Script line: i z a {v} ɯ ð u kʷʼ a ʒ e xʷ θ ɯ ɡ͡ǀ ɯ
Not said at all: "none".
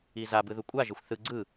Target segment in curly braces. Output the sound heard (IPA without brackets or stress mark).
b